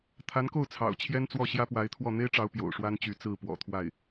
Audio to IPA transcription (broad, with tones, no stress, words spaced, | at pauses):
t̪ʰa˧˥nko˥˩ʊ̯ t͡sʰɑ̰˨˩ʊ̯t͡ɕʰjɛ˥nt͡swɔ˥˩ ɕjä˥pwa˧˥ɪ̯t̪ʰwɔ˥˩ n̪e˥ɪ̯ʈ͡ʂɑ˧˥ʊ̯ pjo̰˨˩ʊ̯ʂwa˥nt͡ɕy˧˥ t͡sɹ̩˥˩pwɔ̰˨˩t̪ʰwa˥˩ɪ̯